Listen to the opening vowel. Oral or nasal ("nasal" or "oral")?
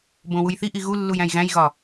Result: nasal